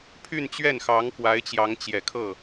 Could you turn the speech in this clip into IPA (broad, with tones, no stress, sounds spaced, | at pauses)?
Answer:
pʰ y˥˧ n t͡ɕ ɥ ɛ˥˩ n x ɑ˧˥ ŋ k w a˧˥ ɪ̯ t͡ɕ j ɑ˧˥ ŋ t͡ɕ j ɛ˨˩ kʰ ɤ˥˩